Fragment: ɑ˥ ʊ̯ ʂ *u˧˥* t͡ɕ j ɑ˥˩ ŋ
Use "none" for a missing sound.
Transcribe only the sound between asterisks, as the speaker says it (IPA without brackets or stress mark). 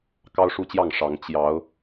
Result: u˥˧